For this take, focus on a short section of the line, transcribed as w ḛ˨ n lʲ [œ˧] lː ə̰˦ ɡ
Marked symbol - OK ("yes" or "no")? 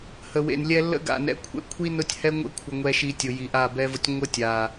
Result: no